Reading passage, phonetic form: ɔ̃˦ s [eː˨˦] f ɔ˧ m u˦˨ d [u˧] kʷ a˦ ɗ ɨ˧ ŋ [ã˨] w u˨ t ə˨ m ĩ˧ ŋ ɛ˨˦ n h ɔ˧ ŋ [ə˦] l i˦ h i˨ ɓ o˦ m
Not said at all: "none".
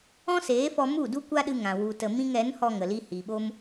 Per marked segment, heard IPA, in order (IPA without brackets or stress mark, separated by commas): eː˨˦, u˦, ã˨, ə˨